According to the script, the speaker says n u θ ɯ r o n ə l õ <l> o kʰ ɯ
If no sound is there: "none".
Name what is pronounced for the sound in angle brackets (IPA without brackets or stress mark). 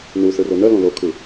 l